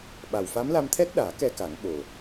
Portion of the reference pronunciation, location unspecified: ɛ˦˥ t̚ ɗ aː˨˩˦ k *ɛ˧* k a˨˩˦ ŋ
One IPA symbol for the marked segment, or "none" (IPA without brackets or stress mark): ɛ˧